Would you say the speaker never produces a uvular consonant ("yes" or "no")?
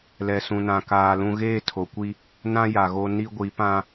yes